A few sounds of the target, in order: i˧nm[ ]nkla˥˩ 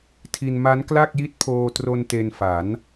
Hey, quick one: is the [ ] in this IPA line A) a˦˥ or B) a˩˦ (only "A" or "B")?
A